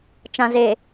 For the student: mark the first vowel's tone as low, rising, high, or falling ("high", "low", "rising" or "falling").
low